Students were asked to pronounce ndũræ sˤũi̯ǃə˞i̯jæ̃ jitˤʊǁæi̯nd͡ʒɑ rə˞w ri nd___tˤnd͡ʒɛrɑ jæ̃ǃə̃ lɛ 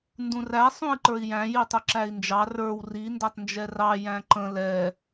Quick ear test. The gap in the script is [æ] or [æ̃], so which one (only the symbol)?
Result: æ